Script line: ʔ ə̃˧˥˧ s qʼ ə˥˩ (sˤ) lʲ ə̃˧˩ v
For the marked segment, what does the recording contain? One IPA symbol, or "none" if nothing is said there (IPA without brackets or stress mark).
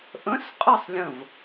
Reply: sˤ